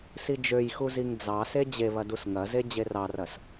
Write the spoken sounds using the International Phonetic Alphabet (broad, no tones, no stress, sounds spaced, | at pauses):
s i d͡ʒ ø j x u z i ŋ d͡z ɑ s e d͡ʑ e β ɐ d u s ŋ ɐ z e d͡ʑ e r ɑ r ɐ s